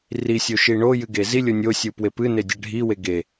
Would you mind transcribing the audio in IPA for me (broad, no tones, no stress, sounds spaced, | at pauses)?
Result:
r i sʲ o ʃ i ɳ o j ɨ ɡ e z i lʲ o nʲ o sʲ u p w e p ɨ n e dʲ ɛ ɖʱ i w e ɡ e